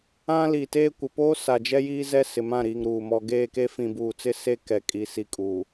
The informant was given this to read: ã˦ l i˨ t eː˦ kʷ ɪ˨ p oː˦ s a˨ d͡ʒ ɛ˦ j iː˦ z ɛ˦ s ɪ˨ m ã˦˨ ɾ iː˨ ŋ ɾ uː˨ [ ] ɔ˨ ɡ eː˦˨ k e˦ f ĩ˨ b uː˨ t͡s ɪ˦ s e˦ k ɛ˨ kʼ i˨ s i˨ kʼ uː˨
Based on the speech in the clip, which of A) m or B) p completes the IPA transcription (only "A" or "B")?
A